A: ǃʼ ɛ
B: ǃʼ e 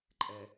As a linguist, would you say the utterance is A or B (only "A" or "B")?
A